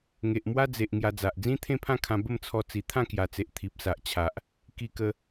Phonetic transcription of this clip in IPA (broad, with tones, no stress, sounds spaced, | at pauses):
ŋ e˨ ʔ m w a˦ d͡z e˨ ʔ ŋ j a˧ d͡z a˨ ʔ d͡z ĩ˦ t̪ʰ ẽ˥˧ pʰ ã˥˧ kʰ ã˧ b ə˥˧ m t͡sʰ ɔ˧ t͡s i˨˩ t̪ʰ ã˥˧ k j a˨˩ t͡s e˨ ʔ t̪ʰ i˨ p̚ s a˨ ʔ t͡ɕʰ a˨ ʔ | k i˧ k ə˧